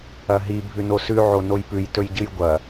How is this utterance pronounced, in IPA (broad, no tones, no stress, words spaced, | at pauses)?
ɐɦi bʱʉnosʉ ʕonojpʉj tɵjɟɨjɡʷɐ